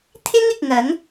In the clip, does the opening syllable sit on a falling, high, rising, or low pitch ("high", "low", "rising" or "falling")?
high